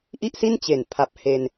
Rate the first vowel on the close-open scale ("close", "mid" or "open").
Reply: close